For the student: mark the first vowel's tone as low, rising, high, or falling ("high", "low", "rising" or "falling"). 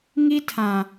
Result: high